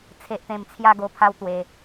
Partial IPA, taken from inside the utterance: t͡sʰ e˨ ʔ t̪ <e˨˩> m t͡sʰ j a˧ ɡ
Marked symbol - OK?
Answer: no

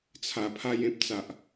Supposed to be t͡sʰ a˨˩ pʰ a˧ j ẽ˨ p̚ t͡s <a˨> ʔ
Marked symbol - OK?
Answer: yes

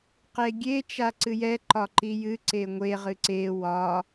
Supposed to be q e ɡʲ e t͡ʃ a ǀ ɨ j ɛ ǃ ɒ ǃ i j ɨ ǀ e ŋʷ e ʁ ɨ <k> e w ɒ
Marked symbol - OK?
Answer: no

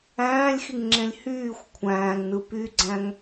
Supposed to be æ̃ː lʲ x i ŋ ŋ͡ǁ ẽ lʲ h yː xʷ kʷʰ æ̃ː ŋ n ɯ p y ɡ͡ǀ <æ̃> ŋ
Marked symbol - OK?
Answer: yes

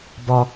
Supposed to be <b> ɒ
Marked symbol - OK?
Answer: yes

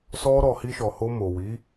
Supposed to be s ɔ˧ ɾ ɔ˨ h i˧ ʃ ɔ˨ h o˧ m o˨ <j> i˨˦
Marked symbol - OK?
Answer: no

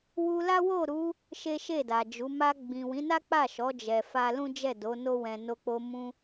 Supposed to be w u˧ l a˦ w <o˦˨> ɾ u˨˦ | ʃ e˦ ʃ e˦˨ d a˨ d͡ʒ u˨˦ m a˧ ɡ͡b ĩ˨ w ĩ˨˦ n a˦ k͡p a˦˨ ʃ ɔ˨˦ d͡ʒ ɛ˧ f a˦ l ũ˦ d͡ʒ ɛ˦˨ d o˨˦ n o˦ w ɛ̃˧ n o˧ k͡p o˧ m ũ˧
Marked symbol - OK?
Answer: yes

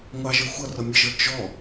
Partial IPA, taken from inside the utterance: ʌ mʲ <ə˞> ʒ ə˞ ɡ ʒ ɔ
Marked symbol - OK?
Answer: no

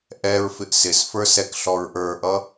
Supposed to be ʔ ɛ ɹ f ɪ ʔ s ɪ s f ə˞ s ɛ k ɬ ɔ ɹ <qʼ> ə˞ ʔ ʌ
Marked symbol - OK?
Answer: no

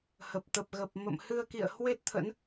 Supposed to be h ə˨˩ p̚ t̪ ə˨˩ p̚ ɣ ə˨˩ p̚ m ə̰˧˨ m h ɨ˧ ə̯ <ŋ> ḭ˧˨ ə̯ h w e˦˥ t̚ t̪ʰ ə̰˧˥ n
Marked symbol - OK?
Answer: no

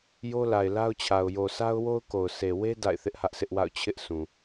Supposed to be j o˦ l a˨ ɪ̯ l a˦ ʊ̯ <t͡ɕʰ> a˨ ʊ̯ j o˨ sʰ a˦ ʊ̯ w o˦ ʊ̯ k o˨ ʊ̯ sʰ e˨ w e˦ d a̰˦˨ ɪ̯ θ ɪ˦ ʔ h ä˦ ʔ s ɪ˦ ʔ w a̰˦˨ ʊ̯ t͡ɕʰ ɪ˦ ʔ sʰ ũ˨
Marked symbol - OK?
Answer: yes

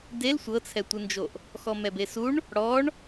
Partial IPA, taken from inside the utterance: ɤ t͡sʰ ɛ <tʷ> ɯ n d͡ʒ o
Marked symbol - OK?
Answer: yes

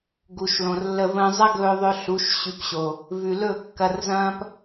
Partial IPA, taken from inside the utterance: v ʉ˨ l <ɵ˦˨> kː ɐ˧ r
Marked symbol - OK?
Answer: yes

